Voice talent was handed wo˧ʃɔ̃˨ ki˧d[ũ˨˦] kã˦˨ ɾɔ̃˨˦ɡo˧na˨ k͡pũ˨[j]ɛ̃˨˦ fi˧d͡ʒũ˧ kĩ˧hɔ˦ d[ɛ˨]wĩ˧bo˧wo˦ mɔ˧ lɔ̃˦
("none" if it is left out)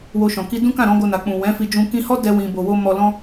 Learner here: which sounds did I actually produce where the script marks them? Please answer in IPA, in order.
ũ˦, w, ɛ˦

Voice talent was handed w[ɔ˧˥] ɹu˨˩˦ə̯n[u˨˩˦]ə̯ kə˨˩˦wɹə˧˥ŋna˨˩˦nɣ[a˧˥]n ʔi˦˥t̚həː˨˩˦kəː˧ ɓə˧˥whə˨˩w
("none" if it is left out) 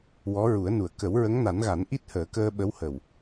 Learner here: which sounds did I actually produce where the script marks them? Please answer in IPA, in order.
ɔ˧˥, u˨˩, a˨˩˦

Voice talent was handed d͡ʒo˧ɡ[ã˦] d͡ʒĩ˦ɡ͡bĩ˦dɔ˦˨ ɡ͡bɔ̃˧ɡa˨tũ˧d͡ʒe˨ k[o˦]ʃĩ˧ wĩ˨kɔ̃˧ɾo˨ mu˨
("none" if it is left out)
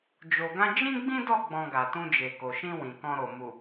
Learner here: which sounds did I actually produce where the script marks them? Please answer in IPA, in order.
ã˦, o˨

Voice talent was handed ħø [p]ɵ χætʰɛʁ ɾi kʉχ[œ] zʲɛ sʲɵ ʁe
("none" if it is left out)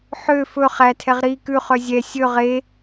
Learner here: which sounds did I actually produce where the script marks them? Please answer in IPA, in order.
f, œ

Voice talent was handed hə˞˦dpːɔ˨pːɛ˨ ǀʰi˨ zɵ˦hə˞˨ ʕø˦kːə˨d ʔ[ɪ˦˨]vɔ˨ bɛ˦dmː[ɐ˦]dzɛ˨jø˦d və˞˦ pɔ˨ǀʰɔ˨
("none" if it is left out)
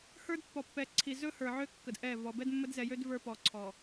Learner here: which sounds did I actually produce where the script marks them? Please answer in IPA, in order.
ɛ˦˨, ə˦

